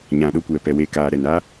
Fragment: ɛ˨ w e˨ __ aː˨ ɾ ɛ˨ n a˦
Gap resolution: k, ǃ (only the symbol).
k